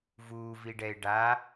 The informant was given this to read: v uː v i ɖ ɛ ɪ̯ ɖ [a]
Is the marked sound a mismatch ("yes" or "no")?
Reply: no